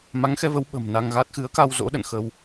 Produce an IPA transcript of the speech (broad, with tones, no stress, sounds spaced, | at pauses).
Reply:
m a˨˦ ŋ x ɛ˧ v ə˨˦ w ɓ ə̤˨˩ m n a˧ ŋ ɣ a˦˥ t̚ x ɨ˨˦ ə̯ k a˧ w z o̰˧˥ ɗ ə̰˧˨ n x ə˧ w